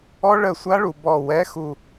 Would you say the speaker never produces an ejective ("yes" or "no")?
yes